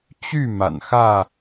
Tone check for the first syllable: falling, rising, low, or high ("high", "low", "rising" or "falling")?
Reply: falling